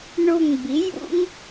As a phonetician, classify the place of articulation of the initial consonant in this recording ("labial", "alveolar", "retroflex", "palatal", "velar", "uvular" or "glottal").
retroflex